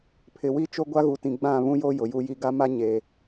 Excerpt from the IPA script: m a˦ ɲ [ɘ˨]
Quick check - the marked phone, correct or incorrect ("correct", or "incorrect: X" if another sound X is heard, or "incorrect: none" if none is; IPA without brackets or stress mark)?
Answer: incorrect: e˨